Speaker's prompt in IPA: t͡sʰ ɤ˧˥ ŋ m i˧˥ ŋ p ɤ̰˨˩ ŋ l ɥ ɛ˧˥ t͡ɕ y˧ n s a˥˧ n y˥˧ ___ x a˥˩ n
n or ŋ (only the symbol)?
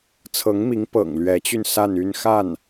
n